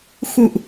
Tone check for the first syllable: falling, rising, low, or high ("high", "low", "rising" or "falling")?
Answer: falling